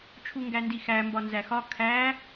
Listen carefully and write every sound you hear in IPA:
t͡ʃʰ u ŋ ɡ æ n d i x æ m b ɒ n z æ x ɒ kʰ æ

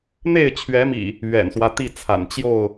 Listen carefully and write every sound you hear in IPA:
n̪ e˥˨ ɪ̯ t͡ɕʰ ɥ ɛ˨˦ m ḭ˨˩ | ɥ ɛ̰˨˩ n s w ä˦ t̪ i˥˨ t͡sʰ a̰˨˩ n t͡ɕ j o˥˨ ʊ̯

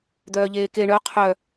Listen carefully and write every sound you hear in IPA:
d̪ œː ʎ eː k e ɳ œ qʰ œ

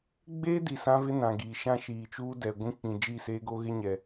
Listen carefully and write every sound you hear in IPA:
ɡ͡b eː˦ d i˨ s ã˦ v ɪ˦ n ã˨ ɡ iː˨ ʃ ã˦ ʃ iː˨ t͡ʃ uː˦ d ɛ˨ ɡʷ ĩ˦ k͡p ĩ˨ d͡ʒ iː˦˨ s eː˦ ɡ o˦ ɣ ɪ˦ ɲ ɛ˨

